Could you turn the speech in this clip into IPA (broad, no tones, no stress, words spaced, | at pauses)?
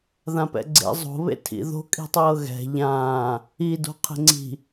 ðãpɛ̰ɡ͡ǀḛ zˤo̤ βḛtʰḭ ðo̤ kʼi̤tˤɤːɣɛ̤ ʎãː | i do̤qʰe̤ŋ͡ǀi̤